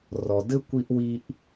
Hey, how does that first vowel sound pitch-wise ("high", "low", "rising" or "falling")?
low